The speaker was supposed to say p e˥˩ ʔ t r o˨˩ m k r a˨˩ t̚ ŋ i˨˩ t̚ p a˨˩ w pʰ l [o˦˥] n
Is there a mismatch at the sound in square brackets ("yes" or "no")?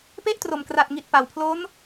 no